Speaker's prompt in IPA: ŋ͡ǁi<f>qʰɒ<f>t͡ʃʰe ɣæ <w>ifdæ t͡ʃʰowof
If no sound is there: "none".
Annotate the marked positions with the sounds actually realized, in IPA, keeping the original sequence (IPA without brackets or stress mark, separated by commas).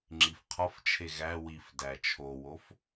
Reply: f, f, w